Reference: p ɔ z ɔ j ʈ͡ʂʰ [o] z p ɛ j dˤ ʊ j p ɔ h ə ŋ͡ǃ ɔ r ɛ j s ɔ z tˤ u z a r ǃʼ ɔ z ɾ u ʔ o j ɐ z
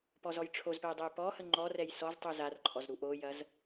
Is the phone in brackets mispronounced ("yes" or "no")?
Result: no